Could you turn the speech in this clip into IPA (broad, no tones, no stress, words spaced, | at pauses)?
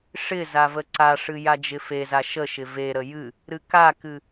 ʂɪ zavəǀaʂɨ jad͡ʒɪfeza ʃəʃɪ veɾə jɨ | ɾɨkakɨ